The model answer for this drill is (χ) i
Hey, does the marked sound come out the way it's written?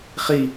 yes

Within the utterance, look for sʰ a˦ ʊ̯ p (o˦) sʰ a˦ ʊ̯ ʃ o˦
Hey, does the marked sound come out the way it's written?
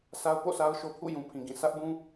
no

